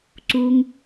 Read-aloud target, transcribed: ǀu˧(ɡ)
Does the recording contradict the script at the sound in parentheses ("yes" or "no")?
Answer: yes